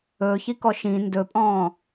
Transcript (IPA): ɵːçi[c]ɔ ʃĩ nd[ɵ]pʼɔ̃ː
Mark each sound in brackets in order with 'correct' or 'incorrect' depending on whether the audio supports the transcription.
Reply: incorrect: k, correct

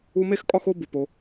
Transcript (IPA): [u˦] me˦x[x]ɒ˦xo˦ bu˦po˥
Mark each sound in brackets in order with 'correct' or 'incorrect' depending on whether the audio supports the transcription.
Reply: incorrect: u˥, incorrect: kʼ

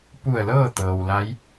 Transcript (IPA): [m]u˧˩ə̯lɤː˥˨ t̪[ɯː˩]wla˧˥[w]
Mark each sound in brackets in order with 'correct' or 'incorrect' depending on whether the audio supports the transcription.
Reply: incorrect: p, incorrect: ɤː˩, incorrect: j

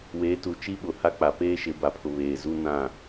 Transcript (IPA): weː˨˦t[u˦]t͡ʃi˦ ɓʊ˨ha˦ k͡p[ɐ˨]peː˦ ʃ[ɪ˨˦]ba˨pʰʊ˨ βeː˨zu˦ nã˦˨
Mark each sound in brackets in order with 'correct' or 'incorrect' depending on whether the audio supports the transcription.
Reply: incorrect: u˨, incorrect: a˨, correct

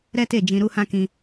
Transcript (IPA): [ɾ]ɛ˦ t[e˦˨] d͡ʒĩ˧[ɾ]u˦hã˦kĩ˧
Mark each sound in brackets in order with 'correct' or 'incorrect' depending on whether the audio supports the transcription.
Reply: correct, correct, correct

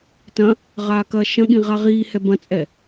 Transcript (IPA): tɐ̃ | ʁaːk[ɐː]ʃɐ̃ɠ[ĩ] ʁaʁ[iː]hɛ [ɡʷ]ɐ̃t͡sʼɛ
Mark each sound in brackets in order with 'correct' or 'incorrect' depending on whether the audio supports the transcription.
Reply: correct, correct, correct, incorrect: b

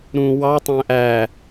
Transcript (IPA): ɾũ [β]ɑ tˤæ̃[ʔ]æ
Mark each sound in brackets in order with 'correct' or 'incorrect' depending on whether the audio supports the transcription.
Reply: incorrect: w, correct

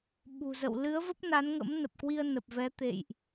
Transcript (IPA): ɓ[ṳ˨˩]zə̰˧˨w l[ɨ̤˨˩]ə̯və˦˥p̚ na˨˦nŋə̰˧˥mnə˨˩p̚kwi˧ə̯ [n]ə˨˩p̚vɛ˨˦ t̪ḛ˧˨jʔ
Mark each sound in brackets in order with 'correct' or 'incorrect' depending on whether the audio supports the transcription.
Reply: correct, incorrect: ɨ˨˦, correct

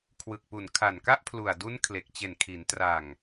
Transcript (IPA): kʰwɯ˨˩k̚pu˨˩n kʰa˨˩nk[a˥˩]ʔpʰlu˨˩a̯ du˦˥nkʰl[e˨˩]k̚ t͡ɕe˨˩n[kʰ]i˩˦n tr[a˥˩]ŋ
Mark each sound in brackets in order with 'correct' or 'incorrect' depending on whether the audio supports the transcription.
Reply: correct, correct, correct, incorrect: a˨˩

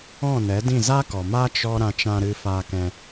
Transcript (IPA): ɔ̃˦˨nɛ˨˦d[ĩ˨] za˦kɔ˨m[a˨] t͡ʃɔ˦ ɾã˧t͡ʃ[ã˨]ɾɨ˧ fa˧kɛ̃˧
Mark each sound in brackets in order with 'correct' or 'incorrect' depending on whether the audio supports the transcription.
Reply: incorrect: ĩ˦˨, incorrect: a˦, incorrect: ã˧

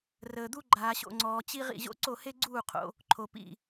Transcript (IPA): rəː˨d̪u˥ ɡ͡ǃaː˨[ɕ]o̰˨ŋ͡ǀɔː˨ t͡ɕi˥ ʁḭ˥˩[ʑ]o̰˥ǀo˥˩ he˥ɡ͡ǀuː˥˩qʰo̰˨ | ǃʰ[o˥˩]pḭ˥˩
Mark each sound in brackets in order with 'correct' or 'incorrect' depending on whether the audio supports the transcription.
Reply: correct, correct, incorrect: o˨

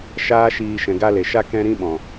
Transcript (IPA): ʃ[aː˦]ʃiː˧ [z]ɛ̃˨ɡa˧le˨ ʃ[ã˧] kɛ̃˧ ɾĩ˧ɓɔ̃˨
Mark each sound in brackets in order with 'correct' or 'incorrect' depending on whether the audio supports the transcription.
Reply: correct, incorrect: ʃ, incorrect: a˧

